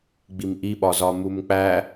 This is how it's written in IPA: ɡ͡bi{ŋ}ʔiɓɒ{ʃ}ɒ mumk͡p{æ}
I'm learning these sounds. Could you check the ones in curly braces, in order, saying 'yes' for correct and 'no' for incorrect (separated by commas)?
no, no, yes